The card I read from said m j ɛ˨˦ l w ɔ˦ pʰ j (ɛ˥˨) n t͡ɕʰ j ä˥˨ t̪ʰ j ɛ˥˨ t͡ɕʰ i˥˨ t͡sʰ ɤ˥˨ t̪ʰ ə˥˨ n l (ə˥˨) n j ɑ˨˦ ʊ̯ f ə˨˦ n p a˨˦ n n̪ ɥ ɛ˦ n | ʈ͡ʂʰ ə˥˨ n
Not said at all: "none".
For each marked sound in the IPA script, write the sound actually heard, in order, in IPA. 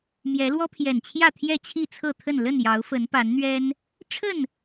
ɛ˨˩, ə˥˨

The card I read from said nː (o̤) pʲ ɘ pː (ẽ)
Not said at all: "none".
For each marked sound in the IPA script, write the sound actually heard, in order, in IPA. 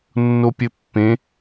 o, ẽ

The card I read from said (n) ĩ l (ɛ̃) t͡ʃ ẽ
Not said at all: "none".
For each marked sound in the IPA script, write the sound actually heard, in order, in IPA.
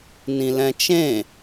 n, ɛ̃

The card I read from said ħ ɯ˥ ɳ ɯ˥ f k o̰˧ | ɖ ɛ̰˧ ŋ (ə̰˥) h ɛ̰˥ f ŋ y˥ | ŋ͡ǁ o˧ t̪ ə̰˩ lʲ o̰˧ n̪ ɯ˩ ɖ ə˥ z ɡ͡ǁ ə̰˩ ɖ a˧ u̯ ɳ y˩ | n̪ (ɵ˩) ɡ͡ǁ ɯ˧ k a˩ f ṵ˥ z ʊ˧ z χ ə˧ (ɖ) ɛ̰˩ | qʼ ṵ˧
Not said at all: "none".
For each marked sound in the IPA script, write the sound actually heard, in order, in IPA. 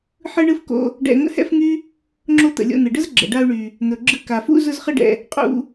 ə̰˥, ɵ˩, ɖ

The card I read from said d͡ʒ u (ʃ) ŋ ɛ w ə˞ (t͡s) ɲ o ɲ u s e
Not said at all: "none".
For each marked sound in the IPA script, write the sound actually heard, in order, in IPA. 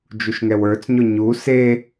ʃ, t͡s

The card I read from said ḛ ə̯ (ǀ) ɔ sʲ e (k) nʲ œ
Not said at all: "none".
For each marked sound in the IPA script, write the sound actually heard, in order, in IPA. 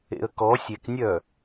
k, k

